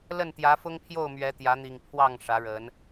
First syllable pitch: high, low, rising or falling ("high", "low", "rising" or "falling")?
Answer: falling